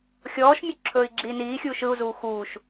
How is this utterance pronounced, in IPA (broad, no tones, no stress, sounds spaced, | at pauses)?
xʲ ɔː ʃ mʲ ɵ ǁʰ ɵː i̯ ɡ͡ǁ iː n iː xʲ uː ʃ ɯ u̯ z uː x uː ʃ